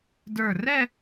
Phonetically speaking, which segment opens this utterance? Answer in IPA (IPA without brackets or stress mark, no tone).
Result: d